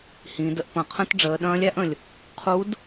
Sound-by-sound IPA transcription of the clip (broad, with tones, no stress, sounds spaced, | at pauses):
h ĩ˩˧ d ə˧ ʔ p ɐ̃˩ qʰ ə̃˥ t ɖ͡ʐ əː˩˧ ɗ ɐ̃ː˧˥ lʲ æ˧˥ ʔ ə̃˩ lʲ | qʰ u˧˥ d